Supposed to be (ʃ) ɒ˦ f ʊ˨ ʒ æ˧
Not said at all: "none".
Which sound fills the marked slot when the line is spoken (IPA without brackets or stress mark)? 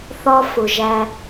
θ